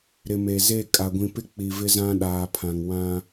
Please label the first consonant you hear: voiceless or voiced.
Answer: voiced